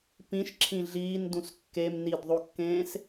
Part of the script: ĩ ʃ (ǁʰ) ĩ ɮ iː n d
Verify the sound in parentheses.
correct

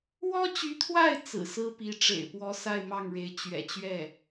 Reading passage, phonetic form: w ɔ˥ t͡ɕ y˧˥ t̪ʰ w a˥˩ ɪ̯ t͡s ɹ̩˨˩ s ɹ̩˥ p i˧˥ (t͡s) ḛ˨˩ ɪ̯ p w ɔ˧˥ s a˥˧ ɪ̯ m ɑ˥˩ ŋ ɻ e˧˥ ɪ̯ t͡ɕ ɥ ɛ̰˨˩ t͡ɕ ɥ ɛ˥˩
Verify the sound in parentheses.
incorrect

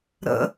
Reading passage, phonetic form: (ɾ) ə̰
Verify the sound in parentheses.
correct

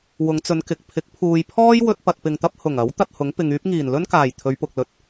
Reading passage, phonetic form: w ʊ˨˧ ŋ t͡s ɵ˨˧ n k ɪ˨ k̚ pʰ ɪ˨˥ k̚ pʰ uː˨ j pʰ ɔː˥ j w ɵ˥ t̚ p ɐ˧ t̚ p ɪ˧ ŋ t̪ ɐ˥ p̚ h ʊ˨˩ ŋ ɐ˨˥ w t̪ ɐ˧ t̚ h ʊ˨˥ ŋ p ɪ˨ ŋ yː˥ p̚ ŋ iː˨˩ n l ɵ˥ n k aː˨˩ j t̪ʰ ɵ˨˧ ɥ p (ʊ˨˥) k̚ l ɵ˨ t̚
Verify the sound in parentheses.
incorrect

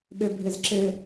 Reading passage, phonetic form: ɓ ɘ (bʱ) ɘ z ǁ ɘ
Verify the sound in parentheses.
correct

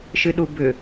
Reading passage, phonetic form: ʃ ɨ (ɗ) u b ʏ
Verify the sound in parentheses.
correct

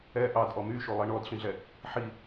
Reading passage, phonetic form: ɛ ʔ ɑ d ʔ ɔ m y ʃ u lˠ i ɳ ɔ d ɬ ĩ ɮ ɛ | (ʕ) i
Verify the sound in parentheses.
incorrect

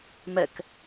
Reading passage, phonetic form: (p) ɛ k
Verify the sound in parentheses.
incorrect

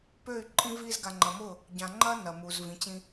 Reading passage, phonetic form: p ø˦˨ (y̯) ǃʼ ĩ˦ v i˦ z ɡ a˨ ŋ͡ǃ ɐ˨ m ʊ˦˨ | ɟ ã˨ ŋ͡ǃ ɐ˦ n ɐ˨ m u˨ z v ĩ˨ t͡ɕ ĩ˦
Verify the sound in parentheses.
correct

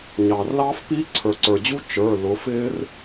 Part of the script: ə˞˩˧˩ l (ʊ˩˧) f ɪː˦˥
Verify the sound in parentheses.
correct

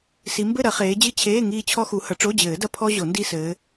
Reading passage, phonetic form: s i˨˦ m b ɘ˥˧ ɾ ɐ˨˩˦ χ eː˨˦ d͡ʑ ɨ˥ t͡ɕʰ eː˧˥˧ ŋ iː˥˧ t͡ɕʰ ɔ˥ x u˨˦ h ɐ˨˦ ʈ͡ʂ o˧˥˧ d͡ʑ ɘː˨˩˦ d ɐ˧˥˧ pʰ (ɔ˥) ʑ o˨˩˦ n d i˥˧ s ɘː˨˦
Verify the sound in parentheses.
correct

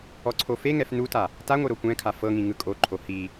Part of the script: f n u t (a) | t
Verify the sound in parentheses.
correct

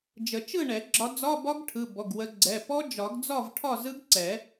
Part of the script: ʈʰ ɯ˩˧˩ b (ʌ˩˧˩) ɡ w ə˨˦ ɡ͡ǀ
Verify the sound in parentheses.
incorrect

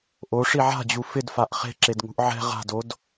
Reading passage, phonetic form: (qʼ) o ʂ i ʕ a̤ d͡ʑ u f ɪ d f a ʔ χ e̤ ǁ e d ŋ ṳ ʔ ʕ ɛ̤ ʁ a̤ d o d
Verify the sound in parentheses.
incorrect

